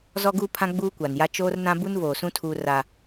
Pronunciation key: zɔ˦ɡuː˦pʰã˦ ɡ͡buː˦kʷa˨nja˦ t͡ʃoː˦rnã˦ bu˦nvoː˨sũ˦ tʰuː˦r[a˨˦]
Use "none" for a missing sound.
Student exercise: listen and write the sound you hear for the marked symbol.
a˦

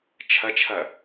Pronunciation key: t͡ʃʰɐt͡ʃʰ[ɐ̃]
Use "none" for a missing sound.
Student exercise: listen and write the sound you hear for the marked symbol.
ɐ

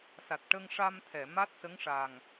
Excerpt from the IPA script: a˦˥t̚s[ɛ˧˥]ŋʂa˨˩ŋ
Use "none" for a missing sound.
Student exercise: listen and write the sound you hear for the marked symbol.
ə˧˥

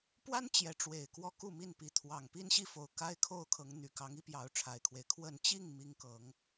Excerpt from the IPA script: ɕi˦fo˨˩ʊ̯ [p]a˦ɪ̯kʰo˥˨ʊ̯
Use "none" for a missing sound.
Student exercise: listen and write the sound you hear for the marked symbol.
k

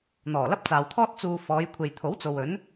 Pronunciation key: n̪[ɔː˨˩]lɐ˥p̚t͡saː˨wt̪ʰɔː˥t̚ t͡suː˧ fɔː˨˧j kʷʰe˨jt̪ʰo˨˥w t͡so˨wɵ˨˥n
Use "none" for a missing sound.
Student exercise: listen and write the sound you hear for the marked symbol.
ɔː˨˩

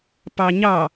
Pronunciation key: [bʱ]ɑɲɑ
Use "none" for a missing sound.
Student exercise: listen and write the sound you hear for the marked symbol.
p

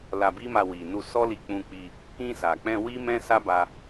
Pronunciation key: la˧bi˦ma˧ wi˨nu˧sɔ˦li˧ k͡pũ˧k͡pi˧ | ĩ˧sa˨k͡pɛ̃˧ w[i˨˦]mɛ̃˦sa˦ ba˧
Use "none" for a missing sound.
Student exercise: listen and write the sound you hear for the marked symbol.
i˦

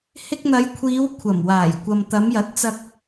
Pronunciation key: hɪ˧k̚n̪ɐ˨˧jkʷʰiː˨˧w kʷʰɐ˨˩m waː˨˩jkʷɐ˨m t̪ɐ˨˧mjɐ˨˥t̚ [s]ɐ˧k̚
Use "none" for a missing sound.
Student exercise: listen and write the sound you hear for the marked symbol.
t͡s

